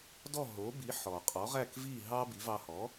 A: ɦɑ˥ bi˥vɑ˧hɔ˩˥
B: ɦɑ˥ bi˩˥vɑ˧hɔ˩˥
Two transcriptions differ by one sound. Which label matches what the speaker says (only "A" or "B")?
B